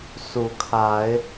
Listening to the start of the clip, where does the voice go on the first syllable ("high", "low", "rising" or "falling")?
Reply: rising